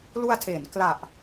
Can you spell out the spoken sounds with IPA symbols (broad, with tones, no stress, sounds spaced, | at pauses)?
l u˧ a̯ tʰ eː˩˦ n k l a˨˩ ʔ